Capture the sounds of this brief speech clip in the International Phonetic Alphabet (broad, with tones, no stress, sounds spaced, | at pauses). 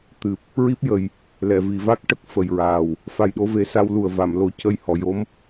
t̪ ɨ˨˩ p̚ | ɹ i˦˥ p̚ j ə˨˩ j | l ɛ˨˩˨ v i˨˩˨ v a˦˥ k̚ ʈ ə˦˥ k̚ f ə˨˩ j ɹ aː˨˩ w | f a˨˩ j ɗ o˧ v e˨˩˦ s a˧ w l u˨˩ ə̯ v a˨˩˨ m l o˨˩˦ c ə˧ j h ɔ˨˩˨ j o˧˥ m